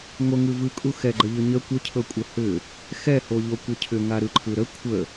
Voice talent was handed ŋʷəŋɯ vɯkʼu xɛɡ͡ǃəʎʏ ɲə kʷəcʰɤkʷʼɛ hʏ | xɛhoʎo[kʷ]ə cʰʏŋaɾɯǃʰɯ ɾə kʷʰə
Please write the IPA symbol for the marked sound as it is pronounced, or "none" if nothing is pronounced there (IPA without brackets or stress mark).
kʷ